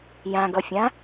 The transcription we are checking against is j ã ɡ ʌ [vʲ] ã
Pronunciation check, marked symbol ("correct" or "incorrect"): incorrect